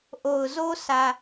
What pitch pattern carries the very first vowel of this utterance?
low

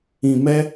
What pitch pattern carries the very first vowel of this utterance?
low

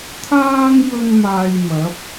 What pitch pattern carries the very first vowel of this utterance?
high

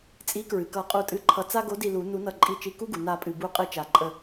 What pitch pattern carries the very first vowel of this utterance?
rising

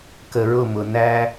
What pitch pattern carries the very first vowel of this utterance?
low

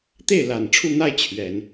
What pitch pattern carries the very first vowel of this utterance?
falling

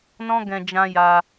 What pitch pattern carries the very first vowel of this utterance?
high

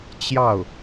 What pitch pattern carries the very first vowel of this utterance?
falling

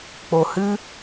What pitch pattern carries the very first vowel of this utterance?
low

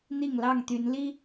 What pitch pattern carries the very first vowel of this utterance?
falling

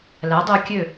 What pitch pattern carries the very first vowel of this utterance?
rising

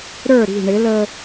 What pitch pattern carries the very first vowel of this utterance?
falling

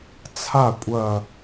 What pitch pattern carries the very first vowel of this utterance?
falling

